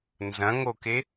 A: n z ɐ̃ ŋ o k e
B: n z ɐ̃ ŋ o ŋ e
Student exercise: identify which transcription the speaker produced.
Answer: A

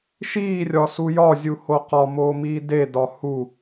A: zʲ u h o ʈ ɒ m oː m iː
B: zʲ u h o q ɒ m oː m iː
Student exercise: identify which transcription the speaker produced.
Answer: B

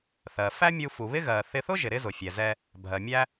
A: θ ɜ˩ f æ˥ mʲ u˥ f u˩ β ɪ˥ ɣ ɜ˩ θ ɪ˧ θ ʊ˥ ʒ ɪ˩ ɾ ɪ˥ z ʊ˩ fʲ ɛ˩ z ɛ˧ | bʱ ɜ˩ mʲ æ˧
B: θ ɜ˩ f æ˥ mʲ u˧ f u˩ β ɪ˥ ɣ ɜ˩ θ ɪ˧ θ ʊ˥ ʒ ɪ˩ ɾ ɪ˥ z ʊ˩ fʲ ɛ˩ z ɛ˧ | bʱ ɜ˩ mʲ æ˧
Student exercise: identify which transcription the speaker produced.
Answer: B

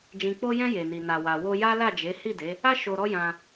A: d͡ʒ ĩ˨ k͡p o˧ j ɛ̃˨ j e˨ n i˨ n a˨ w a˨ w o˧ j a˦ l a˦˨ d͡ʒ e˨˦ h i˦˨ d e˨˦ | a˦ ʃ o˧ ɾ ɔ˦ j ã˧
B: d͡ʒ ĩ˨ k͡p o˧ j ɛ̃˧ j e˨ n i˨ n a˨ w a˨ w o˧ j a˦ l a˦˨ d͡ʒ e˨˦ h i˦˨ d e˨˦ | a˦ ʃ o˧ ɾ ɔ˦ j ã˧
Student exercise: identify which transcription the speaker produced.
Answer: B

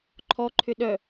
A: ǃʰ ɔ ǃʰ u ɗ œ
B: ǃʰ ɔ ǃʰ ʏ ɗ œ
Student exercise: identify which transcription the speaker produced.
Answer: B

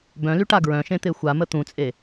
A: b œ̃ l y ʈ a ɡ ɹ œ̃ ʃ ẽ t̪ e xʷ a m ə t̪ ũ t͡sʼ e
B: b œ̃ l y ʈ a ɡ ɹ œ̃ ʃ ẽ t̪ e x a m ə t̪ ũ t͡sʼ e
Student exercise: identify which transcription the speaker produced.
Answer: A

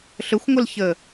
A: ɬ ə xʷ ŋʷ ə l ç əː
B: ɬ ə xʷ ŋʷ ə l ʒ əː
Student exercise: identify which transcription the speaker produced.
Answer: A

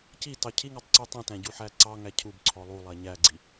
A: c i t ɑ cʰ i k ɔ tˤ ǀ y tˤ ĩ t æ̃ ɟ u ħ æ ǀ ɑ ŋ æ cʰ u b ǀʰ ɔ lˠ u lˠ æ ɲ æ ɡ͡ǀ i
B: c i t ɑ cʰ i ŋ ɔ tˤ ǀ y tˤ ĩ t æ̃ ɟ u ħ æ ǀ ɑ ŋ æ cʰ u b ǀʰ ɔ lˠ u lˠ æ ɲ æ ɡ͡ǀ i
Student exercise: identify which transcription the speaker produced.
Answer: B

